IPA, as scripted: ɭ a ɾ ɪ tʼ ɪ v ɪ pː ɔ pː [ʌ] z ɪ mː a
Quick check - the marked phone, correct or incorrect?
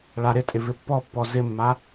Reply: incorrect